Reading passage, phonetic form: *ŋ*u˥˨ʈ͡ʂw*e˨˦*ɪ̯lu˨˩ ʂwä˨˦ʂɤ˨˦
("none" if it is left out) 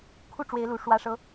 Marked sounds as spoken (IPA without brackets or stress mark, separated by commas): kʰ, e˨˦